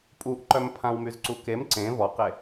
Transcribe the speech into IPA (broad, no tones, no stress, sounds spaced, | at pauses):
pʼ u ʔ ǃ œ m pʰ ã w m y z ǀ u k e m ǀ ẽ v ɔ q e